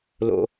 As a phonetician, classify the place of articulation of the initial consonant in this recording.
alveolar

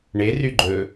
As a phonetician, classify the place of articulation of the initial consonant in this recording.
retroflex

